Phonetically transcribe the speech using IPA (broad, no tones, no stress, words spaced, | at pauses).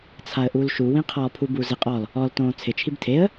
t͡sʰaə̯ʔulʃu wĩqʰɔ pʰubuzɪ qʼɔl | ɔl tõːt͡sʰɪ t͡ʃʰibtʰeə̯